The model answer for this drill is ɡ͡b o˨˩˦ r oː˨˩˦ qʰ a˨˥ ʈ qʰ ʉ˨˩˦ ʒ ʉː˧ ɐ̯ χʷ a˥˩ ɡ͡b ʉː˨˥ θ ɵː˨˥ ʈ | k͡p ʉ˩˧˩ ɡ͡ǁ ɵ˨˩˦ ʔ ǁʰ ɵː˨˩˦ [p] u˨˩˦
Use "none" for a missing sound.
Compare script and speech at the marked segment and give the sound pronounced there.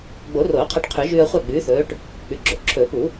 p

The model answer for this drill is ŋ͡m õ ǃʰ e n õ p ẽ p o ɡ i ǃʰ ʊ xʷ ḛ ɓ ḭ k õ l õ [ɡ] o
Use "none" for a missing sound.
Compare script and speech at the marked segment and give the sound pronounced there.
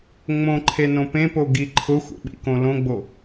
ɡ͡b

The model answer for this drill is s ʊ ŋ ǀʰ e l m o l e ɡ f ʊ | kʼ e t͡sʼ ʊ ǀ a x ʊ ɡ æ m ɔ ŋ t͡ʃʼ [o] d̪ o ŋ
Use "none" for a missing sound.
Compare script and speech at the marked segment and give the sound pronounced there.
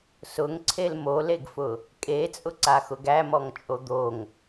o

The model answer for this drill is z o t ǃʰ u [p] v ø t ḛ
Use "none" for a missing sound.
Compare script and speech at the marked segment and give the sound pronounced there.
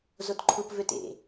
p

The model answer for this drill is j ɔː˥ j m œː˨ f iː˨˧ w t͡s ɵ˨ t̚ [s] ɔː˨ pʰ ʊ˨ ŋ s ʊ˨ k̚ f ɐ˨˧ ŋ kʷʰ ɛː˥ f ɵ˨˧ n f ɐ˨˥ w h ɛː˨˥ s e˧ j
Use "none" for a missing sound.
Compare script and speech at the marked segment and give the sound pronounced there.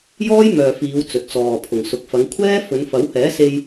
t͡s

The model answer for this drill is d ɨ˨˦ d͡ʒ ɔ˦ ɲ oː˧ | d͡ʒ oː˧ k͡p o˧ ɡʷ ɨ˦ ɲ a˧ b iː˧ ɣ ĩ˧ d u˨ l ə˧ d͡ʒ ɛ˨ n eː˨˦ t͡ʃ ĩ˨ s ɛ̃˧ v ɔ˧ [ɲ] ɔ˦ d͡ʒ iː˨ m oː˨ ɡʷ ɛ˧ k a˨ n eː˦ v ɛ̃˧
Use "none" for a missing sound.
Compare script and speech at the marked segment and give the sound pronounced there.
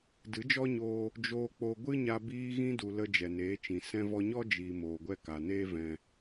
ɲ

